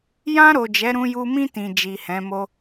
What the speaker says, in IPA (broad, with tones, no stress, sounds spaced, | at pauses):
j ã˧ ɾ o˨ d͡ʒ ɛ˨˦ ɾ ũ˧ j u˧ m ĩ˧ t ĩ˨ d͡ʒ i˨ h ɛ̃˨˦ m o˦